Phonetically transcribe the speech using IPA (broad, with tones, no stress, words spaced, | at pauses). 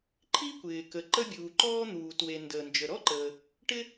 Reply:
ǃʰi˥kʷɪː˩kə˩ ǃə˥bʲuː˩ǃɔː˥ n̪uː˩twe˩ ndəː˩nd͡ʒə˩ɾɔ˥ǃəː˩ | ʈɪ˥